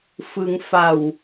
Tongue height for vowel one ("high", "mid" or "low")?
high